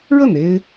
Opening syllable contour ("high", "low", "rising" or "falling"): falling